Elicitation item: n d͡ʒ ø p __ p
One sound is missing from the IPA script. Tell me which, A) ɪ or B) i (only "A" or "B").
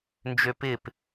A